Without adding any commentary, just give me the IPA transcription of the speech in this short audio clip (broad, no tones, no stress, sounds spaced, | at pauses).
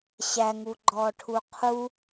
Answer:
ɕ æ ŋ u ɡ͡ǃ ɔː ʈʰ u qʰ u